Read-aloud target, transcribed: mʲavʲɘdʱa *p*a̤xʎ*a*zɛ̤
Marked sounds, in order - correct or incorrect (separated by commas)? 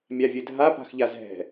correct, correct